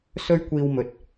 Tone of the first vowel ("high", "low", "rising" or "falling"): high